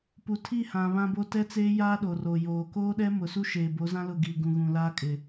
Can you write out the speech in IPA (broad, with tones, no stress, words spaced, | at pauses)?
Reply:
pu˨tʰi˦˨hã˨ βã˦bo˦ tɛ˦t͡seː˦jaː˦ɗo˨ ro˨joː˨ koː˦ɗɛ˦ mʊ˨su˦ ʃeː˨bo˨˦zã˦lʊ˦˨ ɡi˨ ɡũ˨ɣũ˨ laː˦kʼɪ˨